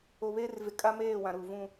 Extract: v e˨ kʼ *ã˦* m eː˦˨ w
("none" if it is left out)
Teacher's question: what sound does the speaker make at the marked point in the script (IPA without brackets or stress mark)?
a˦